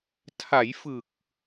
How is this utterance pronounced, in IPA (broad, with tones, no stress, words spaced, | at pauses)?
tʰa˩˦jfɯ˨˩k̚